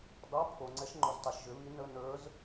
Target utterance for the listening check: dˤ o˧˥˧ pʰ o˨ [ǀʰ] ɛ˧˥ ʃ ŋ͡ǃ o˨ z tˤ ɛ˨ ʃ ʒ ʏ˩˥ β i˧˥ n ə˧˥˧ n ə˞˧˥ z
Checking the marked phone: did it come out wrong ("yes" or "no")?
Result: yes